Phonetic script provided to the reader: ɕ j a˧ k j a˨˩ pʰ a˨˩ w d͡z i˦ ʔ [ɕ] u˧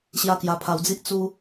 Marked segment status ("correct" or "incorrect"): incorrect